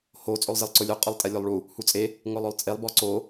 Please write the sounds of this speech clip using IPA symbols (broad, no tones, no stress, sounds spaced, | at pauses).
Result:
h o t͡sʼ o lˠ z ɪ lˠ ǀ ʊ lʲ o qʼ ʊ lˠ tʼ ɛ lʲ o lˠ ɭ u | h u t͡sʼ e | ŋ ʊ lˠ ʊ lˠ t͡sʼ e lˠ b ɔ ǀ o